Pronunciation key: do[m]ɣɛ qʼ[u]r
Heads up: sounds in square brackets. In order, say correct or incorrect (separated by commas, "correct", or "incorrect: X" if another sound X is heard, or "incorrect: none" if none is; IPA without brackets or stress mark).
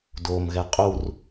correct, correct